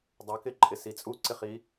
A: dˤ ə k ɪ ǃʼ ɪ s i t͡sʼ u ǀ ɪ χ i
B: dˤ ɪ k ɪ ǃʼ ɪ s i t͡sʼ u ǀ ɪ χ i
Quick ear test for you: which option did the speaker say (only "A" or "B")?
A